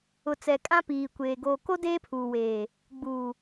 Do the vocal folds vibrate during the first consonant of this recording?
no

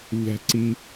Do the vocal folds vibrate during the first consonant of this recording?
yes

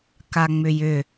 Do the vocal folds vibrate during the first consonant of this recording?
no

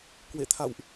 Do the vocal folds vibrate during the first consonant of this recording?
no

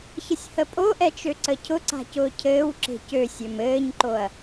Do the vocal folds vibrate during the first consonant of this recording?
no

